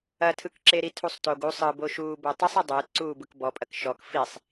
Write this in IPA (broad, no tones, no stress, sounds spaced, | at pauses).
ɐ tʰ ɯ k ǁ e ɾ i tʰ u sˤ t o ɡ u sˤ ɯ b o ʃ uː b o tˤ ɘ sˤ ɐ dˤ ʊː t ǀ uː b ɯ k b ɔ pʼ ɐ k ʃ ɔ k f i sˤ